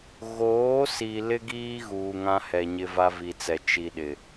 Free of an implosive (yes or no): no